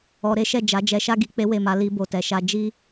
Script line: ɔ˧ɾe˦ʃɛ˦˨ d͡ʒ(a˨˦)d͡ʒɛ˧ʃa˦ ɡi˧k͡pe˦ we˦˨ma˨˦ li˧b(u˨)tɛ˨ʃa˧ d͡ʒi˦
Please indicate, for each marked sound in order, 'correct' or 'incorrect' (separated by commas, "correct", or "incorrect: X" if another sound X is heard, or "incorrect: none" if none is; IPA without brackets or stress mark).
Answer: correct, incorrect: o˨